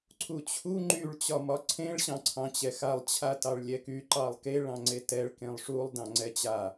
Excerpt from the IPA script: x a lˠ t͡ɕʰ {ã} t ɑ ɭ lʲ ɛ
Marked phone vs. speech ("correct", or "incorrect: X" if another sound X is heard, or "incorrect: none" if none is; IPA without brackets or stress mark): incorrect: a